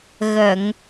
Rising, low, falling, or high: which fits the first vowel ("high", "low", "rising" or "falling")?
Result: low